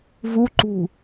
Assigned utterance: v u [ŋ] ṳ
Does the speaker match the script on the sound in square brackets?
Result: no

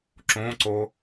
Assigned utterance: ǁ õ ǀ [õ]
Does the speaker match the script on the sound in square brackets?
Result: no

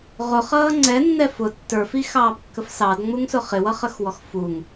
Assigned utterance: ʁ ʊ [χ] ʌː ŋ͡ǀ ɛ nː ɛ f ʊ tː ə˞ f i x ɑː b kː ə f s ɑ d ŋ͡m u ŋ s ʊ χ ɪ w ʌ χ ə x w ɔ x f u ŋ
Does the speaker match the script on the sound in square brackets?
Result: yes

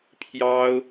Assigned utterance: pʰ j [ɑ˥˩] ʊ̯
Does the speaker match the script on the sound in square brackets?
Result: no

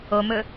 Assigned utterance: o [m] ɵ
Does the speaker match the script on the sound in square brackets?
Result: yes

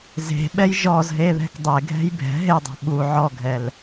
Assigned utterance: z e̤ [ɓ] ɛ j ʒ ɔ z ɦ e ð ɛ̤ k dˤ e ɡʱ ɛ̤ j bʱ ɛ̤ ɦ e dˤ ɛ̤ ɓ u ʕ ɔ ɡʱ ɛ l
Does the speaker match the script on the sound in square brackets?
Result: yes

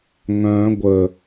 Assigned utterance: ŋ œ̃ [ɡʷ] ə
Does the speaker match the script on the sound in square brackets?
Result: yes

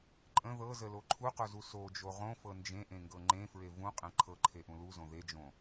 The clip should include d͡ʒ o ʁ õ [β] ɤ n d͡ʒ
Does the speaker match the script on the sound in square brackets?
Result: no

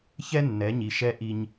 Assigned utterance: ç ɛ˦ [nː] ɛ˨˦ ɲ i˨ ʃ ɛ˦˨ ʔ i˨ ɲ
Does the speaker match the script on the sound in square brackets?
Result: yes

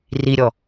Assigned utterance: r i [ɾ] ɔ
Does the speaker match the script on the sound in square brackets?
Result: no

